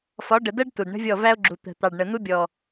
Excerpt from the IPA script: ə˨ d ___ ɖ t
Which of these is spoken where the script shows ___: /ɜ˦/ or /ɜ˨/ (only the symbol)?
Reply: ɜ˦